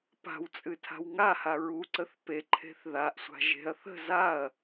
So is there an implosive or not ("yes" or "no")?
no